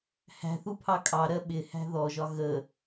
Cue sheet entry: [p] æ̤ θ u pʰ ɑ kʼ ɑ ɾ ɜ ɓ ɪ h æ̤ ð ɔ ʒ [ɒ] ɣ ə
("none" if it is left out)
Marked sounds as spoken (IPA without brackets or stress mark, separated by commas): h, ɒ